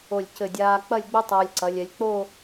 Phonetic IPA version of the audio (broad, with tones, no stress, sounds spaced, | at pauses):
o˧˩ lʲ c ɘ˧˩ dʲ aː˧ k͡p ɐ˥˧ lʲ ɡ͡b ɘ˥ tˤ ɐː˧ lʲ ǀ ɐ˩˧ lʲ ɛ˩˧ lʲ k͡p o˥˧